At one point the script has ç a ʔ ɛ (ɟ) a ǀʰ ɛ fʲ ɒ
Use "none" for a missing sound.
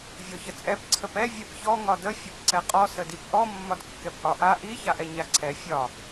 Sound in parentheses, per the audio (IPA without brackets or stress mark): ɲ